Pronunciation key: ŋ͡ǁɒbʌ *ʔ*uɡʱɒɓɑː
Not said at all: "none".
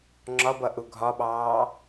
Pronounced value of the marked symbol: ʔ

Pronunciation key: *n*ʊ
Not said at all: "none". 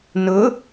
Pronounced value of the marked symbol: n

